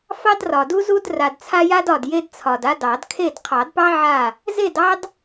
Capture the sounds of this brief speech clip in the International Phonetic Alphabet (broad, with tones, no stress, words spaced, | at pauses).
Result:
fɑ˦drɒ˨du˦zu˦d ra˨dt͡sʰa˦ja˦dɒ˨d je˦dt͡sʰɒ˨d a˦dɑ˨˩˦dkʰe˥˨d qʰɑ˨˩˦dpɑ˦ ʕa˥˨ | ze˥˨dɑ˦d